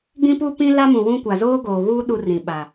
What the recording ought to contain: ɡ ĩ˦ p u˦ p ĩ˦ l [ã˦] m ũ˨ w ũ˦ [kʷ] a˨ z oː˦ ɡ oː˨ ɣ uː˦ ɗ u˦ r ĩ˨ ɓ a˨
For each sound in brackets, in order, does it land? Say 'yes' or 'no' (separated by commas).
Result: no, yes